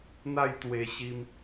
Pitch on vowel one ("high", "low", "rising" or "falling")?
falling